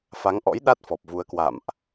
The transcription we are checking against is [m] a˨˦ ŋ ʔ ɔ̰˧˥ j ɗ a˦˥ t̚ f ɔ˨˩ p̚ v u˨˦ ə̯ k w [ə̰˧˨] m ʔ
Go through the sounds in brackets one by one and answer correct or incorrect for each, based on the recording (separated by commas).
incorrect, incorrect